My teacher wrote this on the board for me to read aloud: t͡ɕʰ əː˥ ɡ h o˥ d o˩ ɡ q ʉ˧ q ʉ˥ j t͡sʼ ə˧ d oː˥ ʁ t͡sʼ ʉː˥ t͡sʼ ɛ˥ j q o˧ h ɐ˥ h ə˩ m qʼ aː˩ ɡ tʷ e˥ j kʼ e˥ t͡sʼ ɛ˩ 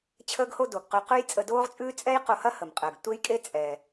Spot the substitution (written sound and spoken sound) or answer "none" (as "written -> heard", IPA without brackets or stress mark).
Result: aː˩ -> əː˩